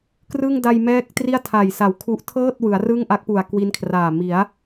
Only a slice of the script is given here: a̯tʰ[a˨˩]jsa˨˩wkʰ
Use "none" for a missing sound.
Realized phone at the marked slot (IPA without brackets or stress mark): a˨˩